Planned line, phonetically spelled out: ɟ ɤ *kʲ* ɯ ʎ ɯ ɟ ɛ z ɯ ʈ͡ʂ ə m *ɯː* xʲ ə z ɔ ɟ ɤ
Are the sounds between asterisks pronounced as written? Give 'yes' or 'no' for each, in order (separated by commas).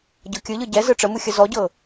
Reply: yes, no